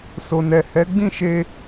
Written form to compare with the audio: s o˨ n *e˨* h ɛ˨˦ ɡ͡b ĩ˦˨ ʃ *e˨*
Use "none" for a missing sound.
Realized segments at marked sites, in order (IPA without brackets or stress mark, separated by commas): ɛ˨, e˧